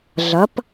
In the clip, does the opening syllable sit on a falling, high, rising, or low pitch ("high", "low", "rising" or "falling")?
rising